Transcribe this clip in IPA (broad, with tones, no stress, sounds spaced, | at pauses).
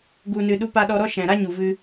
ɡ u˨ n ɨ˨ ɗ u˧ p a˧ ɗ ɔ˧ ɾ ɔ˦ ʃ ɛ̃˨ ɾ a˦ ɲ u˨ v ɨ˧